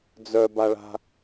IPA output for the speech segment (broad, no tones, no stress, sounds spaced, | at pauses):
d͡z œ b a ɭ a̤